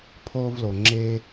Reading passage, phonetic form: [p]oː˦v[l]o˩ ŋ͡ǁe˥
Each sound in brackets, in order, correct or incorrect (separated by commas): incorrect, correct